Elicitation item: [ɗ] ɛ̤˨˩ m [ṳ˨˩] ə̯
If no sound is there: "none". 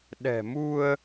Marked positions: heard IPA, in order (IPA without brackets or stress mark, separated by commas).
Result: ɗ, u˧